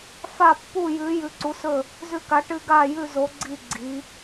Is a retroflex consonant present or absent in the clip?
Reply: present